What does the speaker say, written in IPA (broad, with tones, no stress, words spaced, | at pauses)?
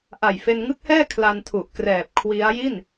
ʔa˨˩jfe˧nŋɯ˦˥k̚hɛː˥˩ kʰla˧ntʰu˨˩ʔkrɛː˨˩p̚ kʰwi˦˥a̯ ji˥˩n